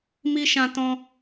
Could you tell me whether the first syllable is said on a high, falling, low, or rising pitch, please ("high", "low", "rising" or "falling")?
high